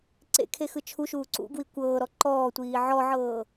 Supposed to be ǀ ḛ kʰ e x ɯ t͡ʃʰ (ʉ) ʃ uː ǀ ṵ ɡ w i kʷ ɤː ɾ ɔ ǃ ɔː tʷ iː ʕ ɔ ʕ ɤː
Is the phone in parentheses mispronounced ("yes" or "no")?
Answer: yes